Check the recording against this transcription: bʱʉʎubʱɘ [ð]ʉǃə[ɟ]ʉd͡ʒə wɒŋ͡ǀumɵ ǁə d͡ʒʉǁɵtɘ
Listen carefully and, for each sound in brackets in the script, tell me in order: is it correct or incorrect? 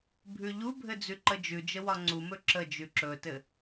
incorrect: d͡z, incorrect: d͡ʒ

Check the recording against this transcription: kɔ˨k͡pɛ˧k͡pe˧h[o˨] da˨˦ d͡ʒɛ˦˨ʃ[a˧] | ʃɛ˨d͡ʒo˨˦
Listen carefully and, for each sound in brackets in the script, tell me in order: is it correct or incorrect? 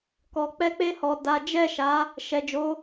incorrect: ɔ˨, incorrect: a˨˦

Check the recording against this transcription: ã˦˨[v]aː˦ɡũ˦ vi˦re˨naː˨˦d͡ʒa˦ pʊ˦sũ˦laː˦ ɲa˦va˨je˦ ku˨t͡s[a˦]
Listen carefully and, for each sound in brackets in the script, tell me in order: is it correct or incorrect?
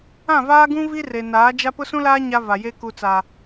correct, incorrect: a˨

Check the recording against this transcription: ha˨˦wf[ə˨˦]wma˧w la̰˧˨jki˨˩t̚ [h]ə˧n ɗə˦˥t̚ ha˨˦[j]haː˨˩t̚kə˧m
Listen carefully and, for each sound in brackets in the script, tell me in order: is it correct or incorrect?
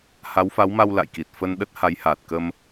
incorrect: a˨˦, incorrect: f, correct

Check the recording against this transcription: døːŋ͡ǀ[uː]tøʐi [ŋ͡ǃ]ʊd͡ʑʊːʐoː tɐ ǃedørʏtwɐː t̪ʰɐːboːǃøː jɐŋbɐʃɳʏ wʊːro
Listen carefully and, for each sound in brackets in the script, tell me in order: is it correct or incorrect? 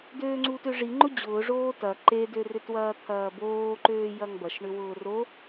correct, correct

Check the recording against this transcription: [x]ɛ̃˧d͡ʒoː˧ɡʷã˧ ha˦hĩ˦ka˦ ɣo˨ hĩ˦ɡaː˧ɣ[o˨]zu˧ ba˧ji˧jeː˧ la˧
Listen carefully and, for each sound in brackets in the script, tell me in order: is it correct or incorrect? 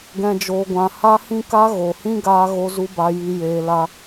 incorrect: ɡ, incorrect: o˧

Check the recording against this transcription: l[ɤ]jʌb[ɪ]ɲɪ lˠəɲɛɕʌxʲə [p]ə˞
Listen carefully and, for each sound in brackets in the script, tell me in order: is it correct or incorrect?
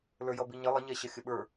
incorrect: ə˞, incorrect: i, incorrect: ɓ

